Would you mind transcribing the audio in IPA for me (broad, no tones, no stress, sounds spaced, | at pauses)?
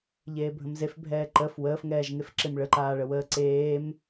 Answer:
ʎ eː bʱ ə̃ m z e f bʱ ɛː ǃ ə f w əː f ŋ ɛː ʒ ŋ e f ǁ e m ɭ ə ǃ aː ɭ ə w əː ǀ eː m